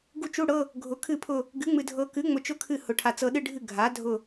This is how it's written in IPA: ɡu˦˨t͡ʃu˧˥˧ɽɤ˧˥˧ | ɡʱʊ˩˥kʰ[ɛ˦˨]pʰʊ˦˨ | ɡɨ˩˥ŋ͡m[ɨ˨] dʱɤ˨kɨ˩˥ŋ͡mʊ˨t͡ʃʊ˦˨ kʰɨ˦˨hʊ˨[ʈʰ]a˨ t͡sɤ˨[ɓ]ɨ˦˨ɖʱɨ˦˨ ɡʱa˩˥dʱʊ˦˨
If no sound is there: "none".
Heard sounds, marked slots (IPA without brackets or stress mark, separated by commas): ɨ˦˨, ɨ˨, ʈʰ, ɗ